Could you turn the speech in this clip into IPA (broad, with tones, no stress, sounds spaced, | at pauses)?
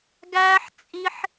ɡ æː˦ ħ t͡sʼ i˦ ħ